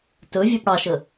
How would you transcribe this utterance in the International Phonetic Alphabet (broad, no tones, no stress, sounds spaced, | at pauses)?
t ɵ vʲ ɛ p ɽ ɑ ʃ ə